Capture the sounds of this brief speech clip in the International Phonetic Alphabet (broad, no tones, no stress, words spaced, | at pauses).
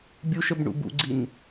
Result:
bʲuʃəb ɳṵbṵɡ͡ǀin